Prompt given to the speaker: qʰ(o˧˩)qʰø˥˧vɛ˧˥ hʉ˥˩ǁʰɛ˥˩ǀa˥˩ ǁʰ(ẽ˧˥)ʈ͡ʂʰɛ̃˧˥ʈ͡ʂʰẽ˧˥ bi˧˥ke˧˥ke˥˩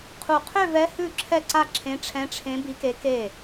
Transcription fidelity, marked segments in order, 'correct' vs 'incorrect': incorrect: u˧˩, correct

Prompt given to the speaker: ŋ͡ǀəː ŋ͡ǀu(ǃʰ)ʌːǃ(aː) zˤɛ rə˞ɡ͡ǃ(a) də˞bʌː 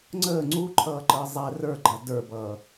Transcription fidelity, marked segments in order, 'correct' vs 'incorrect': correct, incorrect: əː, correct

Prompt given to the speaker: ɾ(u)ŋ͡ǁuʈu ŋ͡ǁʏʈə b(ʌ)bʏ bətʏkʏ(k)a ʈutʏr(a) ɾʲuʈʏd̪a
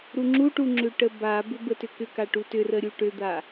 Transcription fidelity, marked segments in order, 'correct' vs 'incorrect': correct, incorrect: a, correct, incorrect: ə

